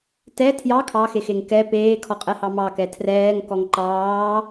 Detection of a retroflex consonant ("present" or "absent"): absent